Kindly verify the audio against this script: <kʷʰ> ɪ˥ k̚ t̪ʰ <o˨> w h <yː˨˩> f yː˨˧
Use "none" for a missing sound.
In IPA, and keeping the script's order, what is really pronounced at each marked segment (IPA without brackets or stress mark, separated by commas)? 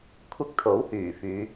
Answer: kʷʰ, o˨˥, yː˨˩